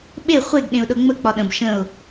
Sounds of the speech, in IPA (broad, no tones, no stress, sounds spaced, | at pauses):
ɓ e χʷ e ɡ ɗ ẽ ʊ̯ ɗ ɤ ŋ͡m ə k͡p ɒ ɗ ə̃ b ʃ ə̃ ʊ̯